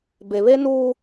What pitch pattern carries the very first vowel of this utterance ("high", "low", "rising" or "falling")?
low